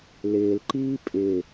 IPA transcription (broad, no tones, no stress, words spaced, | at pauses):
lɪːlǃiː pʼɪː